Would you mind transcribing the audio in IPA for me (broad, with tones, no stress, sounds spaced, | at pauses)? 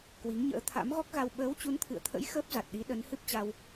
k w i˨˦ ŋ ɲ ə̰ː˧˥ t̪ʰ a̰˧˥ m ɣ ɔ˦˥ k̚ ɣ a˧ w ɓ əː˨˦ w t͡ɕ u˨˦ n t̪ʰ ɨ̰˧˨ ə̯ t̪ʰ ə̰˧˥ j x əː˦˥ p̚ z a˨˩ t̚ ɗ i˨˦ ɗ ə˨˦ n h ɨ˦˥ p̚ t͡ɕ a˧ w